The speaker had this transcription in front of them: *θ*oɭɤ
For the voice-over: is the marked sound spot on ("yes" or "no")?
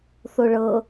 yes